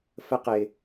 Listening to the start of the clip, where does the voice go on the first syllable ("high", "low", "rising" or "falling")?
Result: high